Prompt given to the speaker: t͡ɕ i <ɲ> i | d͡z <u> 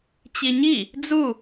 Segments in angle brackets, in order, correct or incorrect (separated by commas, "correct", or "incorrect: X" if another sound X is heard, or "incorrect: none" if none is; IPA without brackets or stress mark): correct, correct